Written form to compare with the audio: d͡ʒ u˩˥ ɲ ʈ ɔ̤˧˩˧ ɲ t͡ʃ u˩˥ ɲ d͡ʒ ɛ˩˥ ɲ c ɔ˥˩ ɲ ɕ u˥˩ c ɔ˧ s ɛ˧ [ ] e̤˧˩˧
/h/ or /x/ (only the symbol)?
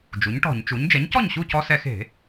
x